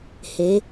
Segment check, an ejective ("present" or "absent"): absent